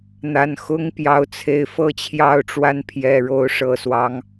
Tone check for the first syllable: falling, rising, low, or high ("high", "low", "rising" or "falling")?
low